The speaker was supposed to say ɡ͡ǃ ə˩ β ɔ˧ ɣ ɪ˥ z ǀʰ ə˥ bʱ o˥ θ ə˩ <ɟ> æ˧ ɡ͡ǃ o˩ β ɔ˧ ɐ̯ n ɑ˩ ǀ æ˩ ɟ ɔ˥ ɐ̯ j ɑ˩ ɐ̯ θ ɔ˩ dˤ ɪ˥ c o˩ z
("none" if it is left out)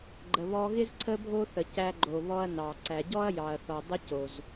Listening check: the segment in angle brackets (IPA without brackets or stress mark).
c